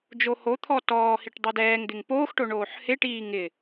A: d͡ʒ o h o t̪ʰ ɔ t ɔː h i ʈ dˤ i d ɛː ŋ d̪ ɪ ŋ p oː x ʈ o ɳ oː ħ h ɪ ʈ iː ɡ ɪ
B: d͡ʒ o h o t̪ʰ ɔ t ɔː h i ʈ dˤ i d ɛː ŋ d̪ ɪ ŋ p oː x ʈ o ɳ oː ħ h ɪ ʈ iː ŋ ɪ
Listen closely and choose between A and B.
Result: B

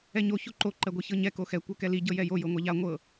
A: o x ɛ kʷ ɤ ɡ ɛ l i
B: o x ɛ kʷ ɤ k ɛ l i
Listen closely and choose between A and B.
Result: B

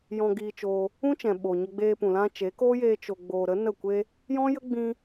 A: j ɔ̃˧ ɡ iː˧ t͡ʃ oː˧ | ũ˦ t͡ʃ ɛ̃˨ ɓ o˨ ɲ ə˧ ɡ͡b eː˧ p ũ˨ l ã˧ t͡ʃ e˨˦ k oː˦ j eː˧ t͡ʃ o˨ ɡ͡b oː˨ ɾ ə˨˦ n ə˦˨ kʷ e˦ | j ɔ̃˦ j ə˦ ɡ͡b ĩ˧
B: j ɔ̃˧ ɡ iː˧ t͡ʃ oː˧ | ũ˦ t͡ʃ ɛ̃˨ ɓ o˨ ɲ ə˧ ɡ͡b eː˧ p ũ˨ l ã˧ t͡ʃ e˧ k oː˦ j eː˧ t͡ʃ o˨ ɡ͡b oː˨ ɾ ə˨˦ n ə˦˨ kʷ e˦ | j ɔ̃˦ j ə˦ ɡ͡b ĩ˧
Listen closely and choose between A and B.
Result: A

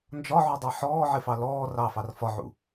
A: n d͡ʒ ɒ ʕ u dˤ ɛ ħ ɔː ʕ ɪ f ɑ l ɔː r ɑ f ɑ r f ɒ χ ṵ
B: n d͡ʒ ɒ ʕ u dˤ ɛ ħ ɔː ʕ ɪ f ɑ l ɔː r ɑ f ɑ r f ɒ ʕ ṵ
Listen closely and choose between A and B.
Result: B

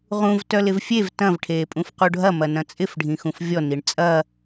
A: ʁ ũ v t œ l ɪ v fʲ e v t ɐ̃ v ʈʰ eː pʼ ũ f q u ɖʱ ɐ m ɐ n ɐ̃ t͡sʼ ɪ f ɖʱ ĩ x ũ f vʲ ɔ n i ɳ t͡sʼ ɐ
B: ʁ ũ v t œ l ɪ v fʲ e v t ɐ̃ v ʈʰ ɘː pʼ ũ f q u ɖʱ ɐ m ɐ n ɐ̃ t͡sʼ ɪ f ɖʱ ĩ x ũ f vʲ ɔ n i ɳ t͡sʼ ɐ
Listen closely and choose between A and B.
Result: A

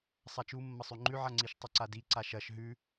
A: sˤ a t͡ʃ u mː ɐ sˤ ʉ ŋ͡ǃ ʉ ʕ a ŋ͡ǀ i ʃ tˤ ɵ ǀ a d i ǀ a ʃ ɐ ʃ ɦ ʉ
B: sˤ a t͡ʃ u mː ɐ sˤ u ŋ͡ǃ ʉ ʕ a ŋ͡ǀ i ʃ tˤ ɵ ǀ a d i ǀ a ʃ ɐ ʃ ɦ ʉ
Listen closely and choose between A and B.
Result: A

